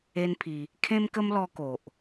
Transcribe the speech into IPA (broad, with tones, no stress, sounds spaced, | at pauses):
e˦ n pʰ i˧ | kʰ ẽ˦ m k ə˦ m l ɔ˧ k o˨ ʔ